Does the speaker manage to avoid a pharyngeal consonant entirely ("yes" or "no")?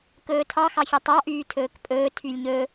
yes